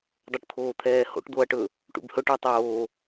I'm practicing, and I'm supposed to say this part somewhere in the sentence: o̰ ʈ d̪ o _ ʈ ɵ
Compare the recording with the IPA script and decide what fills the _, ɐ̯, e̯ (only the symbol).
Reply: ɐ̯